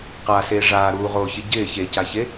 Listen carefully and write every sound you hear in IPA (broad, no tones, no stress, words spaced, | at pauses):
qaseː ʐaːɾuːʁoːçɪ ɟɪː çecaçe